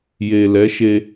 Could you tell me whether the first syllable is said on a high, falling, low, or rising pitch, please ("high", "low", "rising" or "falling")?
low